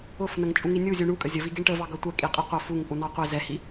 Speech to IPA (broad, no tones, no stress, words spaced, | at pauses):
ʊfnəŋ t͡ʃʼuŋinʲu zʲuɳukʼə zʲəvi ɡiɳʈəvɑ ɡʌtʷɛ kʼiqʼiqʷʌ fuŋ pʼunɑqʷi zɛhi